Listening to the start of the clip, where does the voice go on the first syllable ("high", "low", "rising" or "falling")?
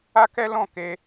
high